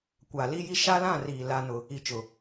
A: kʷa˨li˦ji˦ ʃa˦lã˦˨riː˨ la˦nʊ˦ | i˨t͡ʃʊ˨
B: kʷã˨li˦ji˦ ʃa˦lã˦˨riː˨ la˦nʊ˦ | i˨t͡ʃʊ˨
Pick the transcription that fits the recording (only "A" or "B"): A